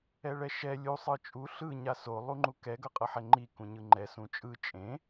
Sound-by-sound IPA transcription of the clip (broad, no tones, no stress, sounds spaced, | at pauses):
ɛ ɭ ɛ ʃ ɛ lʲ u sˤ ɯ t͡ʃʼ u ɬ ɯ ɲ a s o lˠ u ŋ͡ǃ u k ɛ ɡ ʌ qʼ ʌ ħ ɛ ŋ͡ǃ i k ũ ɲ ɯ ŋ͡ǃ ɛ s ũ t͡ʃʼ ɯ t͡ʃʼ ẽ